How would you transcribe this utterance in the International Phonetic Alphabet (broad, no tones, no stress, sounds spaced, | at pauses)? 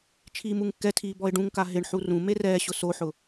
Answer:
t͡ʃʰ iː m u ŋ kː ɛ tʰ iː b ɔ ɪ̯ ɖ ũ ŋ k a ɦ ɪ ɳ ħ u r ũ m e r ɛː ɕ ʊ s o ħ ʊ